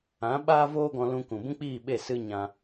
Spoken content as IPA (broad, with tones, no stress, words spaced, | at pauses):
ã˨˦ ɓaː˦voː˦ɡɔ̃˧lũ˧ kũ˨bũ˦k͡piː˦˨ɓe˦˨ sɨ˧ ɲã˧